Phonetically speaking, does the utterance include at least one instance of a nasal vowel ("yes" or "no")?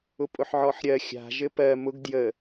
no